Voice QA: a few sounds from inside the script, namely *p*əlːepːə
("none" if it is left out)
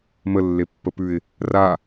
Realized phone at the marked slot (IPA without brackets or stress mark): m